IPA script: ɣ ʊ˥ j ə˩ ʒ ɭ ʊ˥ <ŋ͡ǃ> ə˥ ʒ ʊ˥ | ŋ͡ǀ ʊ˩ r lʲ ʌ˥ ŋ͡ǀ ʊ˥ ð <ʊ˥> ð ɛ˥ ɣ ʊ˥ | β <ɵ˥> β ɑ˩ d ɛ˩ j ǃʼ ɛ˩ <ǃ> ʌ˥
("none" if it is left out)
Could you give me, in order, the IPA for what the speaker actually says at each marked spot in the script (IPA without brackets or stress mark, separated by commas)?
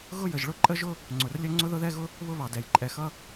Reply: ǃʼ, ʊ˥, ʊ˥, x